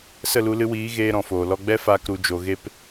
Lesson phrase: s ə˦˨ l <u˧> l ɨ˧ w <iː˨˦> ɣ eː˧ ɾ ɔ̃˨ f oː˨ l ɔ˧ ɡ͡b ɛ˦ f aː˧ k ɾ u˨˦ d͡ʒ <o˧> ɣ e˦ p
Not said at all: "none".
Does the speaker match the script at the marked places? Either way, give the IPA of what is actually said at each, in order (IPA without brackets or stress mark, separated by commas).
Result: u˧, iː˨˦, o˧